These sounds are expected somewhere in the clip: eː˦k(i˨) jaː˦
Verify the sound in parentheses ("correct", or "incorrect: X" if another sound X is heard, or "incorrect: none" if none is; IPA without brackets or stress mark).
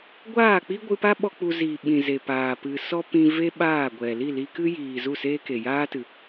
incorrect: e˨